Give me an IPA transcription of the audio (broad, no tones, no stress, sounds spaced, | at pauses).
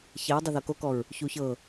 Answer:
ç ɛ ɹ dˤ ɯ ð ɤ k o k ɔ ɹ | ç u ç ɤ